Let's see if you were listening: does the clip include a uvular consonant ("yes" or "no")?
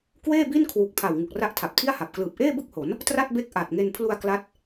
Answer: no